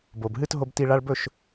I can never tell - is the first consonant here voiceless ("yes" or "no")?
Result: no